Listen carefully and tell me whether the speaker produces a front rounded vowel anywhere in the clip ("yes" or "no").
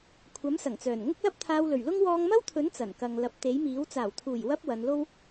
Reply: yes